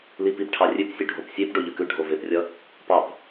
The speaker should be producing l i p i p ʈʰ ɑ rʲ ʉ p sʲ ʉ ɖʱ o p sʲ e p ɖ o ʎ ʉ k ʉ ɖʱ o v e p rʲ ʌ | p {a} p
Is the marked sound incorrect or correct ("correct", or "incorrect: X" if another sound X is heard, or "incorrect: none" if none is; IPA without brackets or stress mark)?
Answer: incorrect: ɑ